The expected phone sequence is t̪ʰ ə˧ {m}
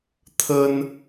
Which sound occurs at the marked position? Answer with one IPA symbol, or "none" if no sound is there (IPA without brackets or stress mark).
n